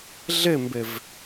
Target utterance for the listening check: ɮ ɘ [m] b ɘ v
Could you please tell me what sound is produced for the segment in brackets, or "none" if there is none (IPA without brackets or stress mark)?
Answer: m